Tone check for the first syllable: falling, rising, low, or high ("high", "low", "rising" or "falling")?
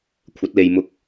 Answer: rising